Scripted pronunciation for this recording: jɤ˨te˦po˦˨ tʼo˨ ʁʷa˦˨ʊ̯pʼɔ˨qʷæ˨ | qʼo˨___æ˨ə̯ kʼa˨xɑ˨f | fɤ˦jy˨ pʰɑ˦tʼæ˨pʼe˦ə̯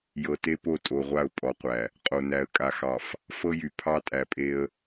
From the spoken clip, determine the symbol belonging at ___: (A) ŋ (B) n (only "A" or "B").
B